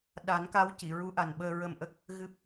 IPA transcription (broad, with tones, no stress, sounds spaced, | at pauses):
ɗ a˨˩˦ n k a˧˥ w c i˨˩˨ ɹ u˧˥ ʔ a˨˩ n ɓ əː˧ ɹ ə˧ m ʔ ə˦˥ k̚ | ɣ ɨ˦˥ p̚